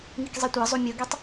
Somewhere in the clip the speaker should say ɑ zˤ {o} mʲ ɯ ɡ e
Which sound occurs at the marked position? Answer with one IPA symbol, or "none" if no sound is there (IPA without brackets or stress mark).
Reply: o